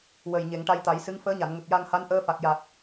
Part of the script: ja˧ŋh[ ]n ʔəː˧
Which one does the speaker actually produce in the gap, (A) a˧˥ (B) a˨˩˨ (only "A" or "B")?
A